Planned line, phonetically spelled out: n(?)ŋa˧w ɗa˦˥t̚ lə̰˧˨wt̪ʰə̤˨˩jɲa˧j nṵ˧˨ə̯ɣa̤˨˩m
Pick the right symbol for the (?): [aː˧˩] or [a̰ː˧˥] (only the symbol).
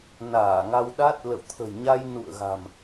aː˧˩